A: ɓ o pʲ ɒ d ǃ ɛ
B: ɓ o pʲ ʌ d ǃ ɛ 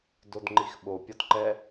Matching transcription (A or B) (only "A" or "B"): A